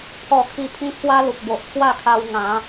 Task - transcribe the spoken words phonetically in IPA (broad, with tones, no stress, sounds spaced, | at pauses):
pʰ ɔ˥˧ kʰ i˥˧ pʰ ĩ˦ pʰ w a˦ l u˨ k̚ b o˨ ʔ kʰ w a˥˧ kʰ a˧ w ŋ ã˨˦